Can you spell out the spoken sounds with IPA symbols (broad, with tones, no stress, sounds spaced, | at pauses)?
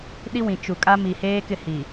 ɗ i˦ w ĩ˨ t͡ʃ u˨ kʼ a˦ m i˨ h eː˦ k ɪ˦˨ h i˨